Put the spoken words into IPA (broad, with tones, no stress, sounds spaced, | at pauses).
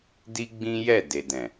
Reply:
d i˦ ɡ͡b ĩ˦ j ɛ˦˨ d e˨ d ɛ̃˨